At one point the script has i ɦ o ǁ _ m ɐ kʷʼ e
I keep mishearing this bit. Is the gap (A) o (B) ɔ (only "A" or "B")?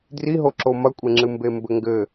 A